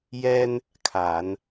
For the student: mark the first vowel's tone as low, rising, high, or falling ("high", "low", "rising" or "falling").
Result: high